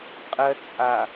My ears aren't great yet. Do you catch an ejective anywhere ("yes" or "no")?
yes